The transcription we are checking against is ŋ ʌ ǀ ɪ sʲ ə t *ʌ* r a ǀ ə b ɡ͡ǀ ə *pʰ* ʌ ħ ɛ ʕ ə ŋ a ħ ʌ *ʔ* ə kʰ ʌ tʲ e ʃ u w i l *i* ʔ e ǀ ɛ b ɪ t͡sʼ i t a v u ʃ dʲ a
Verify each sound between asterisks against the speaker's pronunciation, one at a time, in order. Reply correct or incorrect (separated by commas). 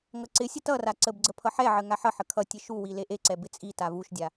correct, correct, incorrect, incorrect